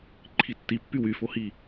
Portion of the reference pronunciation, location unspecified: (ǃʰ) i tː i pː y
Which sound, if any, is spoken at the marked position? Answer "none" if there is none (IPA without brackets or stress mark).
ǃʰ